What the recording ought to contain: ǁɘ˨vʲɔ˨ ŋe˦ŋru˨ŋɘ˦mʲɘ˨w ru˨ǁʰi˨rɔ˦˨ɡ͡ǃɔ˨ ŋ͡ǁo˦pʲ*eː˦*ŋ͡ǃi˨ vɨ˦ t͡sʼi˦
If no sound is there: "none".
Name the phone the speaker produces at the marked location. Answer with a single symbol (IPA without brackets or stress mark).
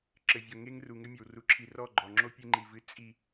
e˦